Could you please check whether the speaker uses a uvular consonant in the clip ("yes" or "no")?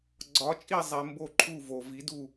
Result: no